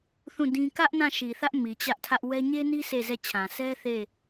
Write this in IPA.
θũ˦˨dĩ˦ kä˦ʔ nã˦˨ʃi˨θä˦ʔ mi˨t͡ɕä˦ʔtʰä˦ʔ wɛ˦ ɲe˦ni˦ sʰe˦˨zɛ˦˨t͡ɕʰã˨ sʰɛ˦ θe˦˨

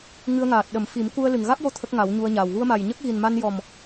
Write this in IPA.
ŋɨ˧ə̯ŋaː˨˩t̚ ɗə˨˩˦mfi˨˩˦m ku˧ə̯ lɨ˨˩ŋɣa˦˥k̚jo˧ t̪ʰə˦˥k̚ŋa˨˩˦wɲu˧ə̯ɲaː˨˩w ɣu˧ə̯ma˨˩jɲə˦˥k̚ ɣi˨˩n ma˧njɔ˨˩m

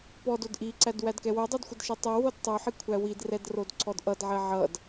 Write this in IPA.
pɔdod ʔiǀæd wædkɛwodˤæd xʷədʃɛtˤowod tˤoħi kʷʰæwidrɛd rodǀɔdʔʌdʕɛ ʕʌd

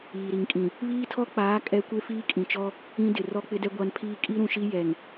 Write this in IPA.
iː˨ɾi˨ŋkʼĩ˨ | βiː˦tʰɔ˦k͡paː˨˦ kʼɛ˦ kʷe˦fiː˦kʼĩ˨t͡ʃɔ˦ | ĩ˦dɪ˨ rɔ˦k͡pɪ˦dɛ˦ ɡʷa˦npʰiː˦ kʼi˦ɾũ˨ʃi˦ jɛ˨ŋ

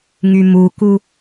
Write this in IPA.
ŋymuku

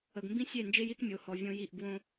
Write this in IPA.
ə˨ɡmbĩ˦sʲe˦˨nd͡ʒe˦j i˦tmʲo˨hɔ˨ vʲõ˦ji˦˨ʔ ɡwõ˦

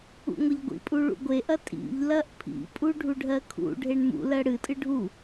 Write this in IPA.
ṵŋʷɐʎɡʷḭpʼu ɭṵɡʷeʔɐ tʼḭʎ lɐʔpʰḭpʼu ɖʱuɖʱɜkʰṵɖʱeɳ mṵ lɜɽɨtʼɨ ɖʱu

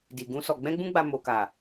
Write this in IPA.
di˨ɡũ˧ sɔ˨ ɡ͡bɛ̃˧ɡ͡bũ˧ɡ͡ba˨ mo˨ka˨

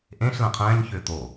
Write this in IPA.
ʔẽɬ lɛ̃qʰɛ̃ːɲçʏː t̪o

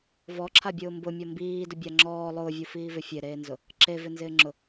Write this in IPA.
vɔǁʰabʲʊː mbʊmʲɔ mbiːdʊbʲa ŋ͡ǁɔː lˠʊːvʲufiːvɪ fʲeɾeːnzʊ | ǁevɪnzɪːŋ͡ǁʊ

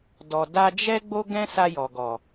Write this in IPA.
dɔ˨ da˧d͡ʒɛ˦ ɡ͡bo˦ɡɛ̃˦sa˧ jɔ˨ɡɔ˨

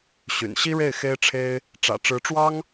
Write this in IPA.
ɕy̰˨˩nɕi˥ɻe˥˩ɪ̯xe˥ɪ̯ ʈ͡ʂʰe˥ɪ̯ | ʈ͡ʂä̰˨˩ʈ͡ʂɻ̩˧˥ʈ͡ʂwɑ˥ŋ

